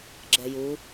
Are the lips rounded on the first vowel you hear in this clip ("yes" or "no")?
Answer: no